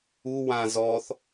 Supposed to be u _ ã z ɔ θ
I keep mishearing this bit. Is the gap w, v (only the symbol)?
w